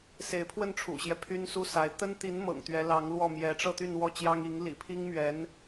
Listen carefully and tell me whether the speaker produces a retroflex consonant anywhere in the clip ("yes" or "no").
yes